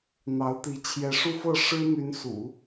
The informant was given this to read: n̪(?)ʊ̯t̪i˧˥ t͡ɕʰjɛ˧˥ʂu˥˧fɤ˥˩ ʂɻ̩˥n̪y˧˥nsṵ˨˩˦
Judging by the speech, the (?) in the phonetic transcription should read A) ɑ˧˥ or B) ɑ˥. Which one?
A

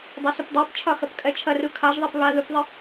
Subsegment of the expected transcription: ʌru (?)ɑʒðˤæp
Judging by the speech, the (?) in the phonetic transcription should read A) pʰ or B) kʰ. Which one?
B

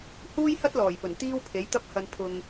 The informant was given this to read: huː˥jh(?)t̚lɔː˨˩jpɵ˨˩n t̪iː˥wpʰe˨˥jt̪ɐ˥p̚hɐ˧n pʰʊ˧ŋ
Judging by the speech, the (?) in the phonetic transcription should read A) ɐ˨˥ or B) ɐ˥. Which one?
B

